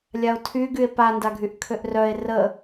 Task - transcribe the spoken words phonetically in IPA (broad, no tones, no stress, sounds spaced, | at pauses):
lʲ a o̯ tʰ y ɡ y e̯ p a n d a ɡʱ y ʔ kʰ ø ʔ r œ e̯ r ə